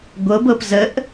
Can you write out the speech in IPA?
ɡʷɤbɤp zəʔ

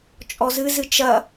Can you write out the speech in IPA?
t͡ʃʼɔzɨ zɨt͡ʃɐ

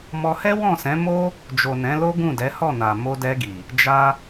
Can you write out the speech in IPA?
mɔ˧ hɛ˦wɔ̃˦˨sɛ̃˨˦ mo˦ | d͡ʒo˨nɛ̃˨˦lo˦ ɡũ˦˨dɛ˨˦hɔ˦˨na˨ mo˧dɛ˧ɡi˨ | d͡ʒa˧

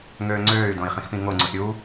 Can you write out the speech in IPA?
ŋøːŋ͡ǀøːy̯dõi̯ χĩxpĩŋoŋ͡ǀus ɾʲu

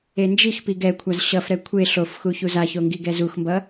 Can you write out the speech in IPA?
end͡ʒixpi ɡɛkʷʰaz ɕʌfɾɛ kʷʰe ɬofxu çuzaço ŋɡiɡɛzuxmbʌ

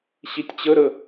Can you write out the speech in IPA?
ɕitʲt͡ɕəɾə

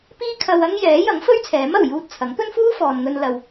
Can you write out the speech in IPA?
piː˥kʰɐ˧wɐ˥ŋ jɛː˨˥jɐ˨˥ŋfɵ˥ɥ t͡sʰɛː˨˥mɐ˨˩wjuː˧t̚ t͡sʰɐ˨˥ŋ pɵ˥nfuː˥fɔː˨nŋɵ˧n lɐ˨w

